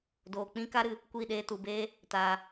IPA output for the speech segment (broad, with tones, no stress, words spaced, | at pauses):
doː˨k͡pĩ˦ka˦ɾɨ˨ | kʷi˦˨ɗeː˧tu˨beː˦ | taː˨